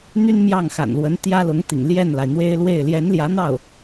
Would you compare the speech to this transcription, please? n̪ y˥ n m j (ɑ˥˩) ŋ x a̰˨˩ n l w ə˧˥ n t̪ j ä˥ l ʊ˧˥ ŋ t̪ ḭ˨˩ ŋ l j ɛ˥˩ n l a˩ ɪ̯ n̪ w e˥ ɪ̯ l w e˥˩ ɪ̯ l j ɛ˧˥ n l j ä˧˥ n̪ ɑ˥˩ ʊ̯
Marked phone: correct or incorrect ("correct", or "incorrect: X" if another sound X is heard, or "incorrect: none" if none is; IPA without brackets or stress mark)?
correct